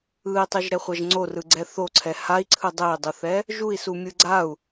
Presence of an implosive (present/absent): absent